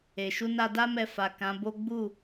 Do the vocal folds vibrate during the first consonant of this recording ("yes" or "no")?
no